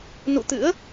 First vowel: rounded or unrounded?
rounded